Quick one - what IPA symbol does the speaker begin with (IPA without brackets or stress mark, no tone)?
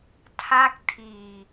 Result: tʰ